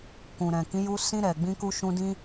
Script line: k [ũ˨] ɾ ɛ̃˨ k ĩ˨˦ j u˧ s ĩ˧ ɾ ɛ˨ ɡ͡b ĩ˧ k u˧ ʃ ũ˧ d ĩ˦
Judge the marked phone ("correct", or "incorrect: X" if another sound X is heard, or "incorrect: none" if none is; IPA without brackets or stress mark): correct